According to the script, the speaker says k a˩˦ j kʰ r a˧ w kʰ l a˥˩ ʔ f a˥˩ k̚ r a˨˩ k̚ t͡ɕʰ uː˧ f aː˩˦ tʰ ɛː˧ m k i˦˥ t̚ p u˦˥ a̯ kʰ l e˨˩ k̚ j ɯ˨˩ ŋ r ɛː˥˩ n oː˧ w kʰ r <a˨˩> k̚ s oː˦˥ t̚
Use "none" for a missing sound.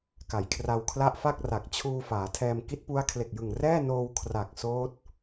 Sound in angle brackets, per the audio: a˨˩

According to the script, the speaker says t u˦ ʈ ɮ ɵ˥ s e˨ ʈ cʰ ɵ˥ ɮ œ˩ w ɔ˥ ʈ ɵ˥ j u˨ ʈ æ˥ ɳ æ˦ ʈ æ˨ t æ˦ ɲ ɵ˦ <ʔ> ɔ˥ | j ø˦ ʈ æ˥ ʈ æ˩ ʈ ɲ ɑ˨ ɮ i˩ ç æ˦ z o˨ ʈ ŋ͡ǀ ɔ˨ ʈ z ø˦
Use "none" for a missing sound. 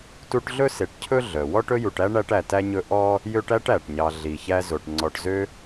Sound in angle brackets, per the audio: ʔ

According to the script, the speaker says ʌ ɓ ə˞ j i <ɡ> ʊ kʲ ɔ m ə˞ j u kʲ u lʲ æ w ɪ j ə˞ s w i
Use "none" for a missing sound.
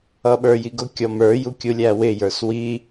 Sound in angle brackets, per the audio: ɡ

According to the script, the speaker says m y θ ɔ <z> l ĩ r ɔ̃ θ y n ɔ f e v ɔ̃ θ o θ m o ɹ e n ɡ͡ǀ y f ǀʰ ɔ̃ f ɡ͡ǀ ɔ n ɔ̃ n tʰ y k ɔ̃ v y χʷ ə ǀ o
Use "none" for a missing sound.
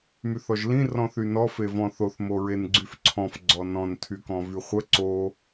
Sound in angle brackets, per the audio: ʒ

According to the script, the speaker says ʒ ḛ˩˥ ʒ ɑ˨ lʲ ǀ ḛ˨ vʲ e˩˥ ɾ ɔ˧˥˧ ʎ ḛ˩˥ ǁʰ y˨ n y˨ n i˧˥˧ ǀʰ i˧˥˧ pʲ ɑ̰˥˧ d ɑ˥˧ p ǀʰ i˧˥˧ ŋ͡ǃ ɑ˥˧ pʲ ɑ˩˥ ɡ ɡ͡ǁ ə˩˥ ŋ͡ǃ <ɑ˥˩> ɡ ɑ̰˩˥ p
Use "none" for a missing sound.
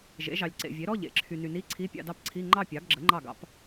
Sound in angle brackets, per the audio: ɑ˥˩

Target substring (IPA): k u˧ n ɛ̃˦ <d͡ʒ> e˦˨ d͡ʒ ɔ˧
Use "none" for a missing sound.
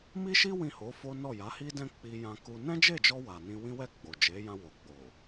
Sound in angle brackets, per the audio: d͡ʒ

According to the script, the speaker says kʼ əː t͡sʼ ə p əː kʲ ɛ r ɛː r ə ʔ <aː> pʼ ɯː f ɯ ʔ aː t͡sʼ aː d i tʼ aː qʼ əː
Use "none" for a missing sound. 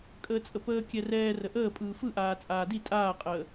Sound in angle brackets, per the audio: əː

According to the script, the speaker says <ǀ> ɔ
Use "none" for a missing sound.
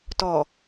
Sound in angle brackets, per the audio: t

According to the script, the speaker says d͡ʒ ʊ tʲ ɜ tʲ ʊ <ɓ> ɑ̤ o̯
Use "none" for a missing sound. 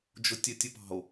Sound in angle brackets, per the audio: p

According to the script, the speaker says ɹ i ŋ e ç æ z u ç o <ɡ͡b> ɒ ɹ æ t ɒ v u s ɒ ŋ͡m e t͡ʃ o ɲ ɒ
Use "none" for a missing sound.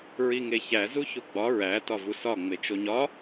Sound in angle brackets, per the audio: ɡ͡b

